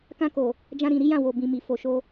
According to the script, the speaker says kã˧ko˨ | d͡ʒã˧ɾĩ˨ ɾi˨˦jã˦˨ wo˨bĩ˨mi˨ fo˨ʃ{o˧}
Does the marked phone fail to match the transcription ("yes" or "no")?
no